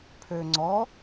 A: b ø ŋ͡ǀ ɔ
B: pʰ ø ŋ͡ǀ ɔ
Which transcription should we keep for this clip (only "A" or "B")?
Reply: B